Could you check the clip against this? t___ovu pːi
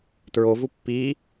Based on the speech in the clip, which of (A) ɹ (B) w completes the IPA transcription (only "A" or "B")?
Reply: A